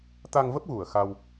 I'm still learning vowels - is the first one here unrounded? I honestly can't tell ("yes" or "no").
yes